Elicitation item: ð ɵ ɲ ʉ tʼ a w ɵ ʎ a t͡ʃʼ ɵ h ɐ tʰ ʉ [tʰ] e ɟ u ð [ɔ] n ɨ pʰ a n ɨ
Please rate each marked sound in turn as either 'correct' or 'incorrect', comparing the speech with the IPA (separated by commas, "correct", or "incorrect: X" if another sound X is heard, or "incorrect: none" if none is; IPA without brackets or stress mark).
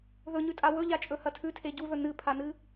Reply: correct, incorrect: ɵ